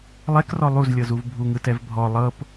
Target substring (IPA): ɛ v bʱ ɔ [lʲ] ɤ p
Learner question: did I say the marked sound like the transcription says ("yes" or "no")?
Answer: no